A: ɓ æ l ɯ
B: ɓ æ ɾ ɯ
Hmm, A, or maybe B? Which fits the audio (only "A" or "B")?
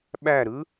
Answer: B